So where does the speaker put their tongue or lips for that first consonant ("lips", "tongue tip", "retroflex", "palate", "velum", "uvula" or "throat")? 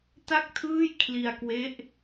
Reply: tongue tip